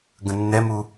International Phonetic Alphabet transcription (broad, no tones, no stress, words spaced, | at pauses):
ɡə̃nːɛmu